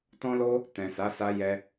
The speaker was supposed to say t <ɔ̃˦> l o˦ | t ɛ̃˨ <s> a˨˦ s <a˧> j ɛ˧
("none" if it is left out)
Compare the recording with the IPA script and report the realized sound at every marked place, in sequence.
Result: ɔ̃˦, s, a˧

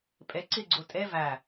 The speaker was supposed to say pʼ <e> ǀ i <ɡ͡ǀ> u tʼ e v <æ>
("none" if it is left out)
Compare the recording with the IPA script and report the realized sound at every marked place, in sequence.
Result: e, ɡ͡ǀ, æ

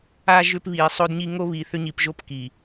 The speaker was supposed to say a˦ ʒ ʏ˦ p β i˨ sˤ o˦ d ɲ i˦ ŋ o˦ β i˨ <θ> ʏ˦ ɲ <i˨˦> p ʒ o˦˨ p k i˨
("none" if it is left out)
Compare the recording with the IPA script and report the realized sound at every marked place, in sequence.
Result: θ, i˨

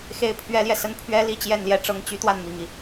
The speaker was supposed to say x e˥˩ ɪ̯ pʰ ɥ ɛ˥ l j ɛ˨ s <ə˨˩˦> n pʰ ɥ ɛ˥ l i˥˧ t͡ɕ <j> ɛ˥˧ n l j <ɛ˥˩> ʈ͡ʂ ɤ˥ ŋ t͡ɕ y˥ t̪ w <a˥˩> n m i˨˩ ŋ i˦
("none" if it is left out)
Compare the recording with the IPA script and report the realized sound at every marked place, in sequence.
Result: ə˥, j, ɛ˥˩, a˥˩

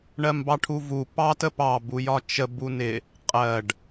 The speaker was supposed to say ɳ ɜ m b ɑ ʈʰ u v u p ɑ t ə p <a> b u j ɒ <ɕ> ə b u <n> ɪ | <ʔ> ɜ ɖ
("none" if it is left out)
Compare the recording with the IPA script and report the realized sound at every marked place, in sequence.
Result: ɑ, t͡ʃ, n, qʼ

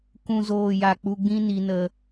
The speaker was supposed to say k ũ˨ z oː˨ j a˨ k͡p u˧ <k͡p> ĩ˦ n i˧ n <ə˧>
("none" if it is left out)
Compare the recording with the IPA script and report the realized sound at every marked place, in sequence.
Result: ɡ͡b, ə˧

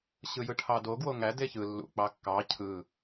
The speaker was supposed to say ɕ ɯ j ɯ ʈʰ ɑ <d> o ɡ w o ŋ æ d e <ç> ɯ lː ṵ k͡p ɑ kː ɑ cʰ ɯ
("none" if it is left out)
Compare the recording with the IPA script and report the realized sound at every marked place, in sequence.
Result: d, ç

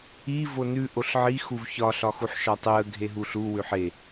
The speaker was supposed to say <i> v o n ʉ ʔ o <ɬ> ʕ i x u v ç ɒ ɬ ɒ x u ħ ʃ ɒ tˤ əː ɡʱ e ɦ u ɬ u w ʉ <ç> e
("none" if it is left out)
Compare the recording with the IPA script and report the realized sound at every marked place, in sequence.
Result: i, ɬ, ħ

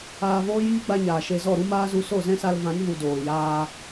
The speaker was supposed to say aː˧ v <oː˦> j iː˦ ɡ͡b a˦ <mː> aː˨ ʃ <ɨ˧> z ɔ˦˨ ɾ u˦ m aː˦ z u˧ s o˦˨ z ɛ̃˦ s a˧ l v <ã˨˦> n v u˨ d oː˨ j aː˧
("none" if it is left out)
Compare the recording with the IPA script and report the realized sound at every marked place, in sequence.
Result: oː˦, ɲ, e˧, ã˨˦

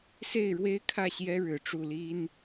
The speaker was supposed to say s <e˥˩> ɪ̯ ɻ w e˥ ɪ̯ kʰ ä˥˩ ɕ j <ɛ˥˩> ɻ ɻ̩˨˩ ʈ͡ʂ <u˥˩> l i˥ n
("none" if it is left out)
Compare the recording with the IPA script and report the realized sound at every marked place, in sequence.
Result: e˥˩, ɛ˥, u˥˩

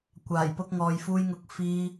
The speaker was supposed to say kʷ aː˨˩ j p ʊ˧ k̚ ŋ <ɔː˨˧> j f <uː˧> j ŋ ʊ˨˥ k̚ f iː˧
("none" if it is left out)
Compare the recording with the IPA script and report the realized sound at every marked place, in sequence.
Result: ɔː˨, uː˧

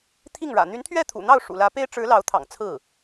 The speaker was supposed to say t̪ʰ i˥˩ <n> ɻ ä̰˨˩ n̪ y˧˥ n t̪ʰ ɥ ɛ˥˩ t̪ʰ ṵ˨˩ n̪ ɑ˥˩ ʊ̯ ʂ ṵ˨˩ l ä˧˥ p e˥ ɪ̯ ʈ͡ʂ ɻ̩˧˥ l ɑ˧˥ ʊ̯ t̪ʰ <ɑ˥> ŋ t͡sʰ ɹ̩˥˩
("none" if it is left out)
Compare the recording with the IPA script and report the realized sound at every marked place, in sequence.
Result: ŋ, ɑ̰˨˩

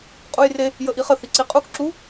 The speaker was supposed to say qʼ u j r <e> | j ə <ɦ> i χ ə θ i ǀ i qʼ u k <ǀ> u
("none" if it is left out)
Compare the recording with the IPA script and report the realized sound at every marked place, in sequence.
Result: e, ʔ, ǁ

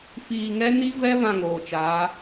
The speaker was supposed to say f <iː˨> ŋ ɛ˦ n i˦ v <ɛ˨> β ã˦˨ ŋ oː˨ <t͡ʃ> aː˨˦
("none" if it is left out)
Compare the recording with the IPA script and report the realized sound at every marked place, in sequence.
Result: iː˨, ɛ˦, t͡ʃ

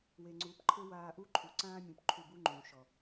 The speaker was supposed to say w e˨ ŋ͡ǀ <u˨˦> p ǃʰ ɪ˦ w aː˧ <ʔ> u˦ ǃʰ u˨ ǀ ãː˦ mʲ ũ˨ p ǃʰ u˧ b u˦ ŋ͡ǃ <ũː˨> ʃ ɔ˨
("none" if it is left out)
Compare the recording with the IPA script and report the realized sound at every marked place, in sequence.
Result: u˨˦, ʔ, ũː˨

